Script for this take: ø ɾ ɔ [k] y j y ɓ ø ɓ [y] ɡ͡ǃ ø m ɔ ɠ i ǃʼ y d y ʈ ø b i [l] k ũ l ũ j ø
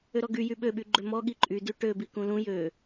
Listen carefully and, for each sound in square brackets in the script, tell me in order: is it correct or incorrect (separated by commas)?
incorrect, correct, incorrect